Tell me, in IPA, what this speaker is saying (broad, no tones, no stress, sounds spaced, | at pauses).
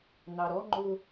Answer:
n̪ ɑ ɾ ɔ ŋ͡ǃ ʊ